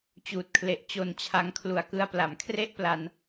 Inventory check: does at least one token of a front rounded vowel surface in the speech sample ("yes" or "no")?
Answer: no